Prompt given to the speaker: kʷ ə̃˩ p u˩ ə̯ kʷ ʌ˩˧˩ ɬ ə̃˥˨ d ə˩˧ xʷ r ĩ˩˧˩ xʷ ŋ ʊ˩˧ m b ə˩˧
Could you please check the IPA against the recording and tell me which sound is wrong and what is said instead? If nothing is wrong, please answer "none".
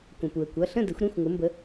r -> ɾ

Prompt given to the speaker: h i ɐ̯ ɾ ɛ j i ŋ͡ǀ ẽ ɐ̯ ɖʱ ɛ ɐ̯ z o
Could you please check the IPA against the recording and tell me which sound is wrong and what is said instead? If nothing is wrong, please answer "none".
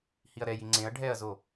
none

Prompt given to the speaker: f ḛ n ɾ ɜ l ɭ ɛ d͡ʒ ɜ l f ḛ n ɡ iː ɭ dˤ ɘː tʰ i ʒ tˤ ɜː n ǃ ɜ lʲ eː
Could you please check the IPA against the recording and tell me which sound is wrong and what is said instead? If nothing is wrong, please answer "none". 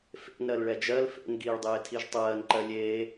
ɘː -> eː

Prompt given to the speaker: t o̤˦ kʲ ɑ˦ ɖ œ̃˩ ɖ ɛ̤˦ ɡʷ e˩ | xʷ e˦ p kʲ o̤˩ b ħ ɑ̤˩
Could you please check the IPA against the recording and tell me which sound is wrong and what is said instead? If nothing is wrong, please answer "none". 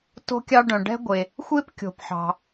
b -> p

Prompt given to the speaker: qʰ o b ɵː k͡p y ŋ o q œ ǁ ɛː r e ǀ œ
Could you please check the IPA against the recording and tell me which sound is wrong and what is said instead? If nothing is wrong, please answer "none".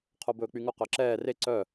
none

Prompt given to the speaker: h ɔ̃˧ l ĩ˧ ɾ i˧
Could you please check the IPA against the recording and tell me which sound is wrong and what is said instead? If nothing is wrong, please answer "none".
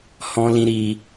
none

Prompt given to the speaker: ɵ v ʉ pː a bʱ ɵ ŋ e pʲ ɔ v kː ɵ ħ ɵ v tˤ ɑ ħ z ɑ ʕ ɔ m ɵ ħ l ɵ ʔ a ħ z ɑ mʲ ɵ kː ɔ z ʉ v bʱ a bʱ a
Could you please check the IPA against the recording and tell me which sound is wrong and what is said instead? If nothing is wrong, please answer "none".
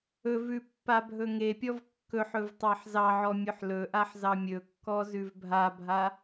m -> mʲ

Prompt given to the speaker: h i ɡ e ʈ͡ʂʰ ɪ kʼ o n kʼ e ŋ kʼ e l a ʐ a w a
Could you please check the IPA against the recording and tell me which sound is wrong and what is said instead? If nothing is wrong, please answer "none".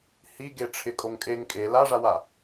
n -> ŋ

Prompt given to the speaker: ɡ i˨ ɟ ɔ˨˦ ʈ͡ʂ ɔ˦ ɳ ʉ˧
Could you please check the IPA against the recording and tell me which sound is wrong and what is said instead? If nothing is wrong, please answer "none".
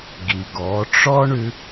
ɟ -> ɡ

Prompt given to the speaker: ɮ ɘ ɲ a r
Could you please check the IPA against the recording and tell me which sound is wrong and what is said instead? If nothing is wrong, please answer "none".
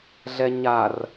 ɘ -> ɛ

